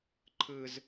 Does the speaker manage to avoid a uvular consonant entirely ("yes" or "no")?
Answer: yes